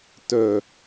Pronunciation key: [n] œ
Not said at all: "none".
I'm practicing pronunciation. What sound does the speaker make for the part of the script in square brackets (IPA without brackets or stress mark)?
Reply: t